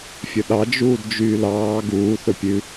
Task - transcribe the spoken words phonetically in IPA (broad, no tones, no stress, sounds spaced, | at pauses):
fʲ ɵ ɗ ɑ d͡ʒ uː d d͡ʒ yː l ɑː ɡ uː θ ɵ pʲ ʉ